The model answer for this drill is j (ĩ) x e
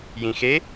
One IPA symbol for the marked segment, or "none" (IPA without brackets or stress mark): ĩ